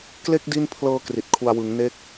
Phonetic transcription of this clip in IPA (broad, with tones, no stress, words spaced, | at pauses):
kle˥˩k̚ di˥˩n pʰlɤː˧ kri˨˩t̚kʰu˧a̯ wɯ˩˦ŋ ne˦˥k̚